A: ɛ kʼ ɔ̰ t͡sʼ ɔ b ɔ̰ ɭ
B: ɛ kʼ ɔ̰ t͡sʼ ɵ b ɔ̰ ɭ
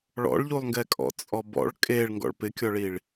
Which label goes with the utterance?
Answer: A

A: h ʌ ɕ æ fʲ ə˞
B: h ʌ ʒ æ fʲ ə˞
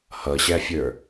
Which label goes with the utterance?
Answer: A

